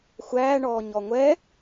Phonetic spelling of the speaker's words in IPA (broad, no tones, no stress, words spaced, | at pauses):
xʷæːɳɔː ɲɔŋʷɛ